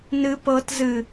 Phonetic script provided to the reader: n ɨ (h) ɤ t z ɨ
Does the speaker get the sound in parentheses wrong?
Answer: yes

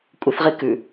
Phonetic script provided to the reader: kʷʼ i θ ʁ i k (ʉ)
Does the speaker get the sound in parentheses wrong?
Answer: no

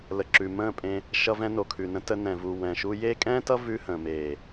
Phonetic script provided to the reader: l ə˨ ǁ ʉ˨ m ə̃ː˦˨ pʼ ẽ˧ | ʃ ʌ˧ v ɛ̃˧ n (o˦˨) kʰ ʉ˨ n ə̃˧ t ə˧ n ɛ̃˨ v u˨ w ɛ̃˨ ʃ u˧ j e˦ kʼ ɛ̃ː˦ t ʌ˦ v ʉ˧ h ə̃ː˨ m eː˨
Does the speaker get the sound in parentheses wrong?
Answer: yes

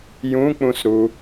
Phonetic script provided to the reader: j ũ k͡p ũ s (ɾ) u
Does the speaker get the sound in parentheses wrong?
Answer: no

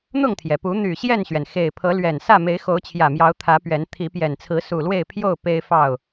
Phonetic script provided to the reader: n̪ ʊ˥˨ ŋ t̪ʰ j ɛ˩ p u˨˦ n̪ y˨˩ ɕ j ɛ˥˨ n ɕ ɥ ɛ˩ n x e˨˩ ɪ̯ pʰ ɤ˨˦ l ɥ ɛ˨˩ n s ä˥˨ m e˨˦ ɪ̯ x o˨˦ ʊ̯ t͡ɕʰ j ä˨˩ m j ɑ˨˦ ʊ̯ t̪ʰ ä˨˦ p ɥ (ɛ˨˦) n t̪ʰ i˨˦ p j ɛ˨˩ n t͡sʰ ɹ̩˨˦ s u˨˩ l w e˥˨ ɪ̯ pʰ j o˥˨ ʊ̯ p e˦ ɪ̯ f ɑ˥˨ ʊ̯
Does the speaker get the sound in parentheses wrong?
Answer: no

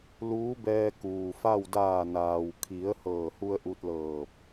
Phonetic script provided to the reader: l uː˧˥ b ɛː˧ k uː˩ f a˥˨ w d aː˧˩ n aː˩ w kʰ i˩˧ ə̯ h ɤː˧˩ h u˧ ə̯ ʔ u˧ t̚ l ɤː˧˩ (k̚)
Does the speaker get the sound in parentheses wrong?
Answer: yes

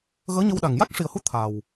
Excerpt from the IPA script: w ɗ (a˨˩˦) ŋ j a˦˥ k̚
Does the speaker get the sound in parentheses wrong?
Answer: yes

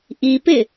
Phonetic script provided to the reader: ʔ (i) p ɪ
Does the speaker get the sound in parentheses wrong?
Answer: no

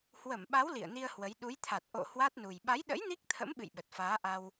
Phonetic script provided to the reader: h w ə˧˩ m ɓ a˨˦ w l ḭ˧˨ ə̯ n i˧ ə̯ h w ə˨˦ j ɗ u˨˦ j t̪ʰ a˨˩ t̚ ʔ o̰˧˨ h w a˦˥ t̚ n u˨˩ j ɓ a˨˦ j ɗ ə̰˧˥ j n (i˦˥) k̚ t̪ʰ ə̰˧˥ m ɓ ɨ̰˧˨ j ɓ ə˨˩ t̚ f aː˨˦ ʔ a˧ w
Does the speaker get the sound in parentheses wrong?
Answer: no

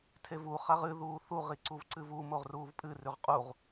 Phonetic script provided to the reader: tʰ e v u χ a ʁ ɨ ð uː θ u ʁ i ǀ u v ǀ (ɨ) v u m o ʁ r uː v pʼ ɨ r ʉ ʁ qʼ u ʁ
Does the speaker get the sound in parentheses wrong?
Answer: no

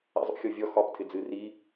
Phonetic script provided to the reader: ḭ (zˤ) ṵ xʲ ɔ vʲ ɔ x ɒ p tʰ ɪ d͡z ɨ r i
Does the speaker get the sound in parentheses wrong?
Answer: no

